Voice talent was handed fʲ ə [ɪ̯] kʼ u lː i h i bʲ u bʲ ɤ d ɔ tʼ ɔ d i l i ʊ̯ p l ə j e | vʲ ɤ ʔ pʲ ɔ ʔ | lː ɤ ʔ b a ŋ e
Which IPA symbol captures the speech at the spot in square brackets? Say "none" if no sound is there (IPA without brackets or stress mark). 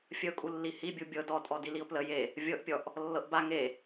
ʊ̯